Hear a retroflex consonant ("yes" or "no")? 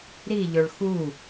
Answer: yes